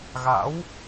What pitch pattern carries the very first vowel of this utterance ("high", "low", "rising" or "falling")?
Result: rising